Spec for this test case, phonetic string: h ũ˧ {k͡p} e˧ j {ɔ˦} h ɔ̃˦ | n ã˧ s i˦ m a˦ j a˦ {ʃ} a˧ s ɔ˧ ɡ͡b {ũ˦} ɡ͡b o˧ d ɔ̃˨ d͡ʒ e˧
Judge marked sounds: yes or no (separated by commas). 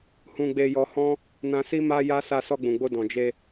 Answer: no, no, no, no